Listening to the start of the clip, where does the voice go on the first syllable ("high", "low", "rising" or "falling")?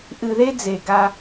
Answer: low